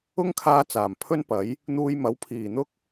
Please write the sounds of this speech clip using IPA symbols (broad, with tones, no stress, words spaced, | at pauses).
ʊ˥ŋkʰaː˧ t͡saː˨˩mpʰɵ˥npɐ˨˥j | n̪uː˧jmɐ˨˥wpʰiː˨˩n̪ʊ˥k̚